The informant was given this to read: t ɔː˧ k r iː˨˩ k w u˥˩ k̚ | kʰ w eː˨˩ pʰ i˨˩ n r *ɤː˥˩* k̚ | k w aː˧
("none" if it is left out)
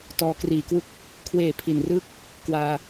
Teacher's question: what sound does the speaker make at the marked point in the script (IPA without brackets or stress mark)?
ɯː˥˩